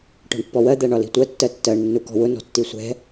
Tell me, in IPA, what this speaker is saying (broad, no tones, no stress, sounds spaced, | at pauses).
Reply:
ʈ ɔ̤ ɳ pː ɔ w ɜ d̪ æ ɳ ɒ l i̤ tʷ ɜ tː ɜ tː ɜ ɳ nː u k ɔ̤ w ʊ n ɔ̤ tː i sʷ ɛ̤